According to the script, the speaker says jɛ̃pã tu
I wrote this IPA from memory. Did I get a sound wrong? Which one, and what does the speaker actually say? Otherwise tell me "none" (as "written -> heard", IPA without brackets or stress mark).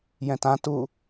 p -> t